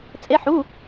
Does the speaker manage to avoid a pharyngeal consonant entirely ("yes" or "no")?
no